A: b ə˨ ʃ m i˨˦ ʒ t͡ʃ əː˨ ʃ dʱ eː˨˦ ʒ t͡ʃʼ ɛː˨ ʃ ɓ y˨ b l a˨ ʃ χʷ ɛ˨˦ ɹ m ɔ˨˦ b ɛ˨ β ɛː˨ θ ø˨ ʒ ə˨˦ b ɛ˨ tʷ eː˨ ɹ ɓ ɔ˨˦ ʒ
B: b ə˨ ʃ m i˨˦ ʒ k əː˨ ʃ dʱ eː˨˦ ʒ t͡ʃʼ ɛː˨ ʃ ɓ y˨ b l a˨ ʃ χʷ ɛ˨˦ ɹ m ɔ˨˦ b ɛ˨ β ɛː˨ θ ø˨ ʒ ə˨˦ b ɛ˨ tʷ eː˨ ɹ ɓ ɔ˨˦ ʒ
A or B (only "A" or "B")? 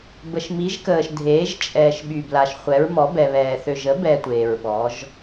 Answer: B